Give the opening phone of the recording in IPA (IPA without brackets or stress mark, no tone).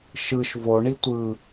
ʃ